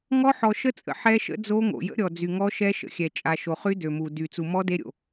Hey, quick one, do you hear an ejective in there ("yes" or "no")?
yes